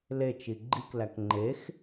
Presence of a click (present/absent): present